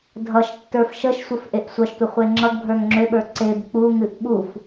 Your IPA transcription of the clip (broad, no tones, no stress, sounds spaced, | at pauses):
dʱ ʌ ʃ tː ə˞ f ʃ ə ʃ sʷ ə f ʔ e ʔ sʷ ʌ ʃ tʷ ʌ χʷ e ŋ͡ǁ ʌ ɡ bʱ ə˞ ŋ ŋ͡ǁ ø ɓ ə˞ ǀ e b k͡p u ŋ ɨ ʔ ɓ u f